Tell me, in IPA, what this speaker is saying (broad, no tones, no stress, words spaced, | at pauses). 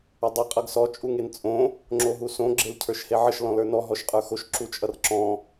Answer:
ədˤʌ qʼʌɡsɔ t͡ʃʼuŋent͡sʼõ | ŋ͡ǁoɦusõ ɡ͡ǁelcʰə˞ʃheʕəʃ lɔ̃lə˞nɔ ɦɔʃqʼə˞xoʃ ǁut͡ʃʼʌrǁɔ̃